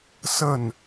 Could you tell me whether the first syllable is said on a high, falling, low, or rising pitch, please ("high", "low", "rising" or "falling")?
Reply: falling